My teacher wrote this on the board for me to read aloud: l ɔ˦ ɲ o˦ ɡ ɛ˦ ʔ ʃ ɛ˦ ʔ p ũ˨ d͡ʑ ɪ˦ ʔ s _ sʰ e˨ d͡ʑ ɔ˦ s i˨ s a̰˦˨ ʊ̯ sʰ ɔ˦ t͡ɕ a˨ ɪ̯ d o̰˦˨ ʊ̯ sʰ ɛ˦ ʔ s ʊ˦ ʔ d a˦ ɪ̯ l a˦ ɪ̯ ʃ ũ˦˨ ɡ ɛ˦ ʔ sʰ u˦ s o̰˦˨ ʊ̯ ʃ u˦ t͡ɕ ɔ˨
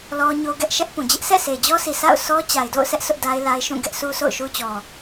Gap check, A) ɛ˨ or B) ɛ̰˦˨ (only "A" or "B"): B